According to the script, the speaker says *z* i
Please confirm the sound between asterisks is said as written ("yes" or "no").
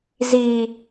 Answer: yes